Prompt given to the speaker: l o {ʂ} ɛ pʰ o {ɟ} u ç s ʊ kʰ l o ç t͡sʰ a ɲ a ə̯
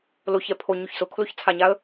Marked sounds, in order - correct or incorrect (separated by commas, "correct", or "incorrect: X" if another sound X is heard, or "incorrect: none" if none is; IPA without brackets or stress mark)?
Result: incorrect: ç, incorrect: ɲ